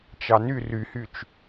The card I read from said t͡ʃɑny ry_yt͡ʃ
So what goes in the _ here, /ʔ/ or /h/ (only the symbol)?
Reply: h